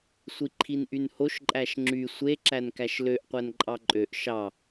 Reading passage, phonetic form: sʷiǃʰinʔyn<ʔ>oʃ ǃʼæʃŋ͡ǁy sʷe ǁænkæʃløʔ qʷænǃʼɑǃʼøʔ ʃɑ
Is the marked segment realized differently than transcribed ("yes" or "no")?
yes